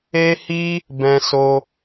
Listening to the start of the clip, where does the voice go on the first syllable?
high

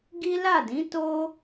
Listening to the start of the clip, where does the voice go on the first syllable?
high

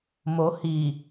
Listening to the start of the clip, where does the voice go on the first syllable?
rising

